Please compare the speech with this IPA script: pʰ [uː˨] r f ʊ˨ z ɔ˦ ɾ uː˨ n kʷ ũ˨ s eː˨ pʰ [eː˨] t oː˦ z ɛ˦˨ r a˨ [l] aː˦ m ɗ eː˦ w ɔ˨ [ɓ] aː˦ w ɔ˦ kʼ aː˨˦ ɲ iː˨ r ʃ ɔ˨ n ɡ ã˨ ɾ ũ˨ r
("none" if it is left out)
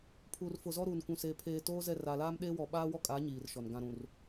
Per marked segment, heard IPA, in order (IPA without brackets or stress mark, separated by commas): uː˨, eː˨, l, ɓ